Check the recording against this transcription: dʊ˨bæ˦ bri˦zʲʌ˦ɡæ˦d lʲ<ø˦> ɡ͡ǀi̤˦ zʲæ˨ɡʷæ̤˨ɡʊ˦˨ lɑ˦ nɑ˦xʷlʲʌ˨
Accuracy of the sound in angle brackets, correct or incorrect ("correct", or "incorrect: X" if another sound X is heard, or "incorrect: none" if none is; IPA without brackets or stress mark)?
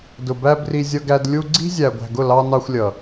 incorrect: u˦